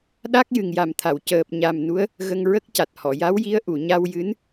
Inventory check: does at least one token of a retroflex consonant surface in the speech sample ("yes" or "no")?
no